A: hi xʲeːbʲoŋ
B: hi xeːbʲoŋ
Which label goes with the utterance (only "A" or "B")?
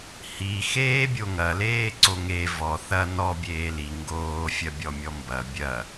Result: B